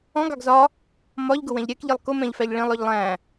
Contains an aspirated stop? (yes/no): no